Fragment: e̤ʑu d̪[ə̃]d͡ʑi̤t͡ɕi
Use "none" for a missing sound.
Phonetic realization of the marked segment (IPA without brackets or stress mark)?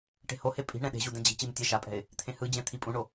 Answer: ɛ̃